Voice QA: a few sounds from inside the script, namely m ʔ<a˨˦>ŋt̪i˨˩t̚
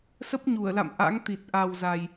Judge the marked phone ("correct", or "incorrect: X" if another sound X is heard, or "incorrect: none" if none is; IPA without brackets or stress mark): incorrect: a̰˧˥